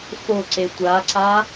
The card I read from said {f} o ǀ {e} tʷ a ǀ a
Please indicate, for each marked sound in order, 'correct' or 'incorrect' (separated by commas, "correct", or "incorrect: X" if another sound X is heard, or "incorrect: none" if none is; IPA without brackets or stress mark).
correct, correct